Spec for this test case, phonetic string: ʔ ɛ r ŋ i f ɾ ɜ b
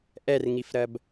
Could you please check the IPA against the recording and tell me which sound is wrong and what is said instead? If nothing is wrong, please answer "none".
none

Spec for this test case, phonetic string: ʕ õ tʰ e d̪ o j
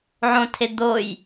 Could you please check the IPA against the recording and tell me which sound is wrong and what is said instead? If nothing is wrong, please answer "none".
none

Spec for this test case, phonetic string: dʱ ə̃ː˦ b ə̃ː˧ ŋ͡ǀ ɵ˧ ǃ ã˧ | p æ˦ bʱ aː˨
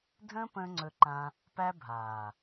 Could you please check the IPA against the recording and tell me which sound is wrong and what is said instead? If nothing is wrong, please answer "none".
b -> p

